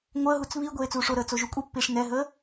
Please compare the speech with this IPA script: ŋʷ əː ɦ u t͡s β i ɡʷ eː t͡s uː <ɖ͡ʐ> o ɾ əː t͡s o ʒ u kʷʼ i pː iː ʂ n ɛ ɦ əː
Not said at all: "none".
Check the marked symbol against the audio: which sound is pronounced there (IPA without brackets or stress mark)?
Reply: ʂ